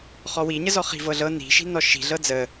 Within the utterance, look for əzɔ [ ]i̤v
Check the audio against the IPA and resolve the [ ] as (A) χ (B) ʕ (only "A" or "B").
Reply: A